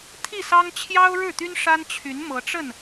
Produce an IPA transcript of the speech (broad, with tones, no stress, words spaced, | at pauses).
t̪ʰi˥˩sɑ˥ŋ t͡ɕʰjɑ˥ʊ̯ɻɻ̩˥˩t̪y˥n ʂa˥nt͡ɕʰy˧˥n mɤ˧˥ʈ͡ʂə˥˩n